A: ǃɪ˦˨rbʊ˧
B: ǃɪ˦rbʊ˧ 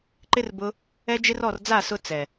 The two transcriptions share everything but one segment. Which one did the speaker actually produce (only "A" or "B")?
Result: B